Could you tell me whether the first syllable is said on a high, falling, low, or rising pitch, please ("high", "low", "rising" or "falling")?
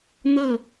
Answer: falling